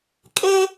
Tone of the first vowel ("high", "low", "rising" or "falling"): high